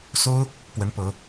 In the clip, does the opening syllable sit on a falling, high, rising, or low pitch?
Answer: high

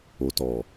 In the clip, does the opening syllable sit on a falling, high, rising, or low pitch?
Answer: low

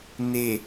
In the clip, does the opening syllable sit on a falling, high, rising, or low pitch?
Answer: low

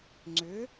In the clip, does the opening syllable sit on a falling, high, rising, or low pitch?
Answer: rising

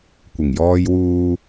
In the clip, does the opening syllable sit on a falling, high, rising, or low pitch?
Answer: low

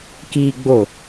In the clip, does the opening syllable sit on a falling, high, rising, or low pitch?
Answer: high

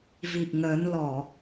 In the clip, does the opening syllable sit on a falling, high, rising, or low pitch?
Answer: low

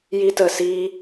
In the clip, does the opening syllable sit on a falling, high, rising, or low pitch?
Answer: high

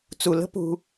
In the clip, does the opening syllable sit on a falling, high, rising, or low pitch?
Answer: low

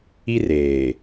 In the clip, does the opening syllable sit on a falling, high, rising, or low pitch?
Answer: high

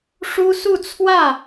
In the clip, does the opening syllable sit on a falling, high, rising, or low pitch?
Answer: high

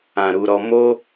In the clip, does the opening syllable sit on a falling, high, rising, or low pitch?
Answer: low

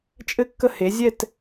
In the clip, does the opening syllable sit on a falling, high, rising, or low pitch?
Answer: high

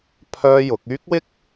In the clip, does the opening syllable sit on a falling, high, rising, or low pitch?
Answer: high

